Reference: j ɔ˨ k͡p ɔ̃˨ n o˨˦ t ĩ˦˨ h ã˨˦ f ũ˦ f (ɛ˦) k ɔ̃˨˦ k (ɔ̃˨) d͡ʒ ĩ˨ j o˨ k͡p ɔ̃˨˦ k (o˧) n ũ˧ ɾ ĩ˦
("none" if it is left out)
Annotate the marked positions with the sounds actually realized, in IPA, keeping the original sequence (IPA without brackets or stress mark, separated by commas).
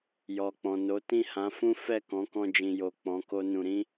ɛ˦˨, ɔ̃˧, o˦